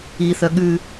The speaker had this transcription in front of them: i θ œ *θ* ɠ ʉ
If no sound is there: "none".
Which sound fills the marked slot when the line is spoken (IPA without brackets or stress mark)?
none